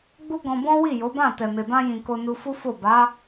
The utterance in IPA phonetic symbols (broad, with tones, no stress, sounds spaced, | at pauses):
ɡ͡b u˦ ɡ ɔ̃˧ b ɔ̃˦ w i˦˨ j o˨˦ b ã˦˨ t ɛ˨ m e˨ b ã˧ j ĩ˨ k o˧ n u˧ f u˦ f o˦˨ b a˨˦